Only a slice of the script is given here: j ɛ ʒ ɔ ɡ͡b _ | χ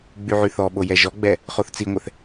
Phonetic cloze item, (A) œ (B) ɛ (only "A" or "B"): B